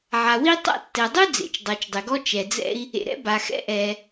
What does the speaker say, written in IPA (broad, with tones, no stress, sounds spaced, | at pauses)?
ʕ a˩ w i˥ tˤ a̰˥ tː ɛ˩ dˤ u˥ d͡z ḛ˩ t͡ʃ dˤ ɤ˩ t͡ʃ dˤ e˩ ɡ ɔ˥ t͡ʃ ɛ˩ d͡z ɛ̰˥ i̯ | ḛ˩ ɾ ɛ̰˥ b a˩ x ɛ̰˥ ʔ ɛː˩